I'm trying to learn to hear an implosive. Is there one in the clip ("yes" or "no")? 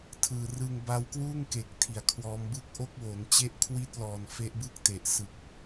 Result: no